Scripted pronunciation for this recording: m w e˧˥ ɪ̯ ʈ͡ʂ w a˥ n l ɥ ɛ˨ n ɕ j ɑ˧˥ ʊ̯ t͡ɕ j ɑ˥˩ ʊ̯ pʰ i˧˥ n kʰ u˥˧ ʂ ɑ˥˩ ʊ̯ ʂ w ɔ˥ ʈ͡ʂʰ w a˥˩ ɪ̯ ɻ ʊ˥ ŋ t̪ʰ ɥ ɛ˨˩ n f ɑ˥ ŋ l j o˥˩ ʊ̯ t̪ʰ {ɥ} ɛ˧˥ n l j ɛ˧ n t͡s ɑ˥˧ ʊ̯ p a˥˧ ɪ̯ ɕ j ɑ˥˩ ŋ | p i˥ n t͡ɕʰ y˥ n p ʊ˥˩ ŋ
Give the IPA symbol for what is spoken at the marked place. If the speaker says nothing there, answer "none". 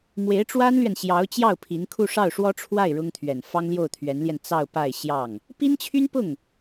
ɥ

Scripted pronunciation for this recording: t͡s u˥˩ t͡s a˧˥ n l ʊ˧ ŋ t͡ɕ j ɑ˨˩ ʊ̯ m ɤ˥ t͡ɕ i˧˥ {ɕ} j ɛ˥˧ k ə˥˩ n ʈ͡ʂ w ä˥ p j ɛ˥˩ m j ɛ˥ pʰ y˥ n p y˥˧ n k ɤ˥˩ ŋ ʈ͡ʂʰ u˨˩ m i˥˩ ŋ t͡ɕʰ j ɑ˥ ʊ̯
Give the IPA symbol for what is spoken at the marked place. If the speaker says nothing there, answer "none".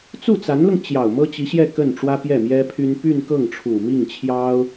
ɕ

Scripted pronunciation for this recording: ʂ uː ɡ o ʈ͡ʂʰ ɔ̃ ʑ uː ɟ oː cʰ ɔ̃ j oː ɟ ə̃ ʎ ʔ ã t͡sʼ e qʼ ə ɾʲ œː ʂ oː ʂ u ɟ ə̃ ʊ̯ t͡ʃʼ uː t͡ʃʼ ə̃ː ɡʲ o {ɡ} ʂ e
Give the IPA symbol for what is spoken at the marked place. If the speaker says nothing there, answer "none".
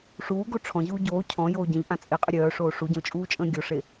none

